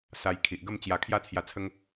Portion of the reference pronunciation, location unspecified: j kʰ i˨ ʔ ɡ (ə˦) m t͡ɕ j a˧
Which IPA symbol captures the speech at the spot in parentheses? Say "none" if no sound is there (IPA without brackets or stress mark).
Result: ə˥˧